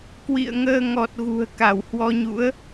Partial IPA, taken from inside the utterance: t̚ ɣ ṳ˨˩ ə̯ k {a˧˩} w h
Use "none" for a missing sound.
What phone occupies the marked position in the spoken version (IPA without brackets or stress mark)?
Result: a˧˩